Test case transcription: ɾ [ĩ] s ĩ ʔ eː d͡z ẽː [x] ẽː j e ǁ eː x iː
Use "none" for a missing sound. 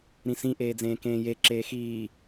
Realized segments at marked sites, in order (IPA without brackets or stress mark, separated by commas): ĩ, k